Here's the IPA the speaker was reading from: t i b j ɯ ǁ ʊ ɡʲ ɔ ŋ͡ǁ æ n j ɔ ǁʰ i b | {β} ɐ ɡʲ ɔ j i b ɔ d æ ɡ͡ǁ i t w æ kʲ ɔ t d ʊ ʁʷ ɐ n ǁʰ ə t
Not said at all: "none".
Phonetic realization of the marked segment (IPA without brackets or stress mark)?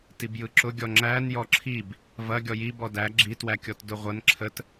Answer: v